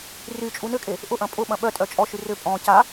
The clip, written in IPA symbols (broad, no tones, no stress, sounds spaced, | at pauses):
r y t͡ʃʼ u n ʏ kʼ e | ʔ ʊ ʔ ɐ̃ pʼ ʊ ɓ ɐ̃ ɓ œ tʼ œ t͡ʃʼ ɔ ʃ y r ʏ pʼ ɔ̃ c a